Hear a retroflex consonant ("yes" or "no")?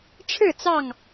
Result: yes